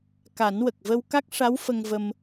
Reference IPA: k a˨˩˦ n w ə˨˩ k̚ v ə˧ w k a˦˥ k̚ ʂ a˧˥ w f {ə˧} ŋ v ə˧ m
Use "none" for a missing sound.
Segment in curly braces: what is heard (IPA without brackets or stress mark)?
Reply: ə˧